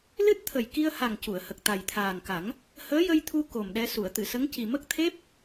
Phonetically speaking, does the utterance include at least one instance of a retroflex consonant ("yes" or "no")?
no